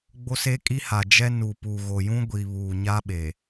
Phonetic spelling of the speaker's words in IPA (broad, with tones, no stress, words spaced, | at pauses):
ɡ͡bo˦se˦kʼi˦ ha˨ d͡ʒɛ˦ nu˨pu˨ɣo˨ jũ˦ɡʷi˨βuː˨ ɲa˦ ɓe˨